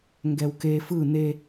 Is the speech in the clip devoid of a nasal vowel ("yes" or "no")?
yes